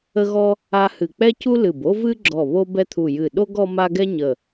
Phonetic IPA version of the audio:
ə˥ɣɔ˥ | a˥ hɨ˧˩k͡pɛ˥cu˥lɨ˧˩b o˥vɨ˥ɡ͡ǁɔ˧˩ βo˥bɛ˥t̪ʰu˧˩ jɨ˧˩ɗo˥ɡ ɔ˥ma˥ ɡɛ˥ɲə˧˩

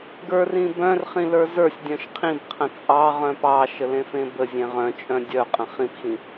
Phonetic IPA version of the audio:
ɡə˞rĩ bœ̃rχĩlə˞ zə˞sʲ dʲœ̃ʃqʰĩb qʰə̃t͡sʼɑ ʁœ̃pɑ ʃəlẽfẽbə zʲẽʁœ̃t͡ʃʼœ̃ dʲœ qʼə̃χĩpxĩ

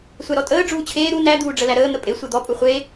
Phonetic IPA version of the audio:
sʷæɾɔtʼəː ɖ͡ʐuːt͡ɕʰeː ɾu næ d̪uːɖ͡ʐəlæɾəː n̪əpʼe sʷed̪ɔ pʼuχʷe

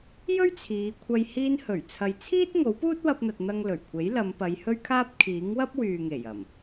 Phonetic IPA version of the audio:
jɵ˥ɥt͡sʰiː˨˧kʷʰɐ˧j hiː˧nhɵ˨˩ɥ t͡sʰɐ˨jt͡sʰiː˥t̚ ŋo˨˥wpuː˥t̚wɐ˧p̚n̪ɐ˨t̚ n̪ɐ˧ŋlɵ˨˩ɥkʷʰe˨˥j lɐ˨˧mpɐ˨˧j hɵ˥ɥkʰaː˥p̚ kʰiː˨˥ŋwɐ˥p̚wyː˨ŋe˨˩j ɐ˨˩m

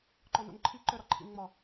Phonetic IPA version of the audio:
ǃɔno̰nǃʰi ǃœɾɒǃʰḭnŋ͡mɒ

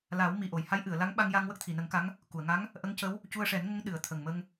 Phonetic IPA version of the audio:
la˨˩˦w mi˨˩ʔo˨˩˨jha˧˥j ʔɨ˨˩˨ə̯la˧˥ŋɓa˧ŋja˧ŋ wə˦˥k̚t̪ʰi˨˩˨nə˨˩˦ŋka˧˥ŋ | ku˨˩˨ə̯ŋa˧˥ŋ | ʔə˧˥ŋcə˧˥w | cu˧ə̯ʂɛ˨˩˦nŋə˧˥ŋ ɗɨ˨˩˨ə̯t̪ʰə˨˩ŋmə˧ŋ

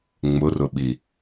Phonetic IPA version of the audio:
ŋ͡mʊrʊɓi

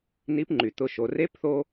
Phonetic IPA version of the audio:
ni˧˥pŋ͡ǃy˩ t̪ʊ˩˧ʃo˩ re˧˥pθo˧

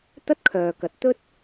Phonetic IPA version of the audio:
t̪ɐ˥t̚kʰœː˨kɐ˨t̚t̪ɵ˥t̚

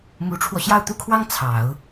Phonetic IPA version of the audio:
mu˧˥ʈ͡ʂʰwɔ˧ ɕjɑ˥˩ʊ̯t̪u˥kʰwɑ˥ŋ t͡sʰɑ˨˩˦ʊ̯

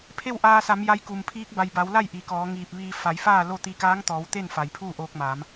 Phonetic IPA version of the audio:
pʰe˥˨wʔaː˧sa˩˧m ja˧˥jku˩mpʰiː˧˥k̚ ba˩jba˩˧wla˥˨j ʔi˩kɔː˩˧ŋiː˧˩p̚ ʋiː˧ fa˩˧jfaː˥˨ lo˥˨ t̪i˧kaː˧˥ŋ t̪ɔː˩˧wt̪e˥˨n fa˩jpʰuː˥˨ʔoː˧k̚maː˩˧m

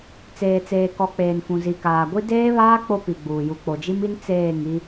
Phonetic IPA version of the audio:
t͡seː˨t͡seː˨kɔ˨ k͡peː˨nfũ˨ zi˨kaː˨ɡʷi˦ deː˦βaː˦ k͡po˦pi˨ɡ͡buː˨ ju˨k͡po˨d͡ʒi˦mi˦n t͡seː˦˨ŋi˦

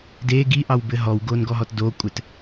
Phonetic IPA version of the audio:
de ɡiʔɑwbɘ ɦɔwɡonɡɔɦɔt dokʷʼɘt

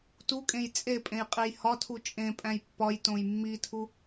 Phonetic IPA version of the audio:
tukʼẽj t͡sʼepʼẽj qʼejhɒtʰu t͡ʃʼẽpʼæ̃j pːɒjtõj mːitʰu

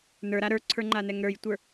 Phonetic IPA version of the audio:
nə˞ɾa ɾə˞ǀʰə˞ŋ͡ǃanɛŋ ɾə˞jtʷə˞

